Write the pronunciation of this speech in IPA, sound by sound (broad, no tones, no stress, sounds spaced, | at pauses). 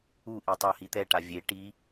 u ʔ i tˤ ʌ h i t̪ ɛ ʈ a vʲ e ʈ i